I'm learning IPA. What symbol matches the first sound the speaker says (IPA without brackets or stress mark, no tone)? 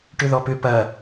ʈ